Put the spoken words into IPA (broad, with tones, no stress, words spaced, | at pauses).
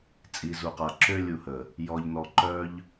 t͡sʼi˨zu˨qa˨ ǁø˦lʲu˧hə˨ | jɔ˧ʎnɔ˧ǃœ˦ʎ